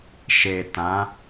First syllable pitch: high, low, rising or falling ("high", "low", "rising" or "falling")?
low